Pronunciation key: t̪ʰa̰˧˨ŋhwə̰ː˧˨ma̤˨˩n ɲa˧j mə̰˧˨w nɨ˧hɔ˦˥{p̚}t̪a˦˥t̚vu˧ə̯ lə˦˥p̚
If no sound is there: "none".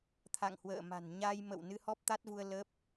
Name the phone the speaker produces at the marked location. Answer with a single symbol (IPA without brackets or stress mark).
p̚